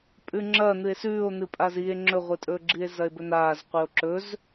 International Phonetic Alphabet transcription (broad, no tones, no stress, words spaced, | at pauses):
pʼʉŋ͡ǁɐ n̪ɨe̯sʉːo̯n̪ɨ pʼazie̯ ŋ͡ǁɵʁʷɨtʼɵːɡ͡ǁie̯ zɐe̯bɵn̪aːz qʷio̯ǁɵz